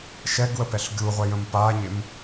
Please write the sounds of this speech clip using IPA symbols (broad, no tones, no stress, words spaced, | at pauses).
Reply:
ʃɛɡwəpɛɬ ɡʲuʁʷɛjə̃m paɲɪm